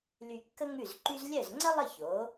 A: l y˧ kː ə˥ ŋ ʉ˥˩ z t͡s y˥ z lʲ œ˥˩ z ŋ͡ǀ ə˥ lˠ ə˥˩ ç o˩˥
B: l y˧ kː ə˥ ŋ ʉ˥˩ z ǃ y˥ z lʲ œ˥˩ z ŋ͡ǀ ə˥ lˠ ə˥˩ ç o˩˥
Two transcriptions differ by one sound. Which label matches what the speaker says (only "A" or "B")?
B